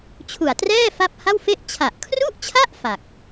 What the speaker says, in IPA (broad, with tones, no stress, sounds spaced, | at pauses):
t͡ɕʰ u˨˩ a̯ t r ɛː˥˩ f a˥˩ p̚ h a˥˩ w f e˥˩ ʔ t͡ɕʰ a˨˩ ʔ kʰ r u˥˩ ʔ t͡ɕʰ a˥˩ ʔ f a˨˩ k̚